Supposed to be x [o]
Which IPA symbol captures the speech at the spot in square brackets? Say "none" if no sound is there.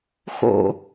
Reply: o̰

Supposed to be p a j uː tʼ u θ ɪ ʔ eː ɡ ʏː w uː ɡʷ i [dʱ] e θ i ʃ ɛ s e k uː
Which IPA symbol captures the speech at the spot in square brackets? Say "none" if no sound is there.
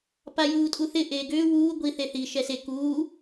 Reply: θ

